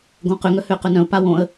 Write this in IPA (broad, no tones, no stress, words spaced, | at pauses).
ɡõqʏŋœ hʏːqønœ̃ʊ̯ pawõə̯